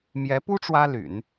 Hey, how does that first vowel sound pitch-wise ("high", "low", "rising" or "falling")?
rising